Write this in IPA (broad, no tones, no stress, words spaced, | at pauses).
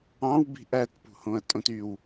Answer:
ɑ̃wbi̤ ʔætpṳhõɐ̯tʼõt yw